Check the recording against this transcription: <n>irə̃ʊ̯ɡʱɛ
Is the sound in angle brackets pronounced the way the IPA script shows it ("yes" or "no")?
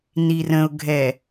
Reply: yes